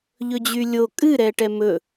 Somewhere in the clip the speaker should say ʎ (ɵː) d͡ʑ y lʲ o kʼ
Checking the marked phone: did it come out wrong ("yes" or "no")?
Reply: yes